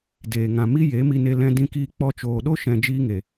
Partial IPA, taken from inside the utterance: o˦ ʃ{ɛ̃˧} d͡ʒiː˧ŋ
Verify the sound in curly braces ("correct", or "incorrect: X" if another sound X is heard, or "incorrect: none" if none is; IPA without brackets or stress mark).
correct